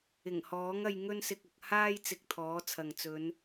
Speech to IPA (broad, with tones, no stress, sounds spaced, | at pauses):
ɪ˨˩ ŋ h ɔː˨˥ ŋ ɐ˧ j ŋ ɵ˥ n s ɪ˧ k̚ ʊ˨ k̚ h aː˥ j t͡s ɪ˧ k̚ t̪ʰ ɔː˨˥ t͡sʰ ɐ˨ ŋ t͡s ɵ˨˧ n